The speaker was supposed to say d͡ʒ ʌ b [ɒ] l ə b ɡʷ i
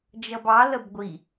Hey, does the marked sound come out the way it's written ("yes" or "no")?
no